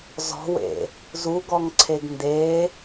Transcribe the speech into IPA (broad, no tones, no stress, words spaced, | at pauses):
zɔ̤wḛ | zuɡɔŋǀʰeɡ nde